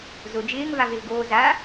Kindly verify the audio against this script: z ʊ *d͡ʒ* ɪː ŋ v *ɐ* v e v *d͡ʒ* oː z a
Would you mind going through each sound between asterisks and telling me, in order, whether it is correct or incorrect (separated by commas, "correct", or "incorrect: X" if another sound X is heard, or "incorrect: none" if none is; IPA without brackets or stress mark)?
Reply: correct, incorrect: a, incorrect: ɡ